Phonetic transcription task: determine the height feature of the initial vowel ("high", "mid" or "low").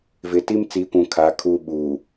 high